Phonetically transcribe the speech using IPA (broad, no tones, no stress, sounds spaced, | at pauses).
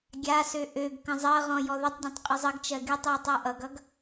ɡʲ a s ø ʔ ø ɡ k ə̃ zˤ ɜ ʁ ɔ̃ j ɔ ð ə tˤ dʲ ɔ̃ tˤ qʼ ə zˤ ə ɡ t͡ʃ ɜ ɡ y tˤ j y tˤ a ʔ ʌ ɡ ʌ ɡ